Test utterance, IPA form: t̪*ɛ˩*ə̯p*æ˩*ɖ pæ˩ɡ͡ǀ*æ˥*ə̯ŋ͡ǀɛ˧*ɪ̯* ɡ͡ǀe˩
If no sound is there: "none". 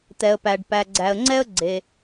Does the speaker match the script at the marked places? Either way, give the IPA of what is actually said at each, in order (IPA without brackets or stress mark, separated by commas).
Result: ɛ˩, æ˩, æ˩, ə̯